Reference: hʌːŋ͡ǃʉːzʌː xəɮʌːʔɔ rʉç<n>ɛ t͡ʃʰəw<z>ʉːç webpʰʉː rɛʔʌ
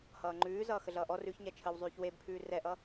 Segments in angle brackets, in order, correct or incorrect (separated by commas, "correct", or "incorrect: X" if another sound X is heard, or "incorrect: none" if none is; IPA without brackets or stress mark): incorrect: ɲ, incorrect: zˤ